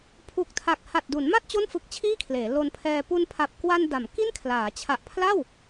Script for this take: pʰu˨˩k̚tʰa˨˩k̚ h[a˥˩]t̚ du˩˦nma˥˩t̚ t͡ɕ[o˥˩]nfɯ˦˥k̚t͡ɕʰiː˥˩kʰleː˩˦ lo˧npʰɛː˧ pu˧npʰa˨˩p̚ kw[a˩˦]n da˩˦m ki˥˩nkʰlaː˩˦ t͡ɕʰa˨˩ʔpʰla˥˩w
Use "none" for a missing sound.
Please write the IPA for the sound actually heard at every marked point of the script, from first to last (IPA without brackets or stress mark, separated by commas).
a˨˩, o˥˩, a˧